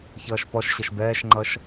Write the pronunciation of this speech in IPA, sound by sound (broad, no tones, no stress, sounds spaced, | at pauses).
ç ʌː ʃ p ɔ ʃ ɕ ʌ ʃ b ɛː ʃ ŋ͡ǃ ʌ ʃ